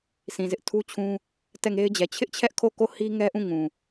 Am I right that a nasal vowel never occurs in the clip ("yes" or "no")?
no